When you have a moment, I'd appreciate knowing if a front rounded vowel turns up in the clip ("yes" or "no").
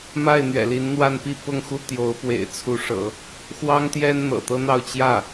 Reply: no